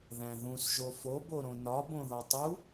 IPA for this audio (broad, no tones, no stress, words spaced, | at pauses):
ðæ̃ðũs ʒofo boɾõnɒ bõðɒtˤu